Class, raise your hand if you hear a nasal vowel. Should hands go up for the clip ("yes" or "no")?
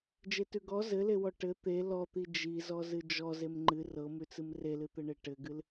no